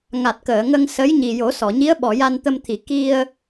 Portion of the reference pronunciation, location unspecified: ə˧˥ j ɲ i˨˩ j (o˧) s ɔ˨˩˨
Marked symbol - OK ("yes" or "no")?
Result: no